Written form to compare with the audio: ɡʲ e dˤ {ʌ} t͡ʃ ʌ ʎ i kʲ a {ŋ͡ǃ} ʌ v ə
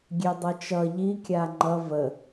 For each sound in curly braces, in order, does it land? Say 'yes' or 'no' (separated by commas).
yes, yes